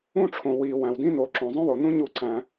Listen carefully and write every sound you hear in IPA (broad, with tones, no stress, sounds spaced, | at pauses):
ũ˥ ʈ͡ʂʰ õ˩ w i˩ w æ̃˩ w d ĩ˥ n o˨ ǁ õ˩ zˤ õ˥ w o˩ n ũ˥ ɲ u˦ ǀ æ̃˨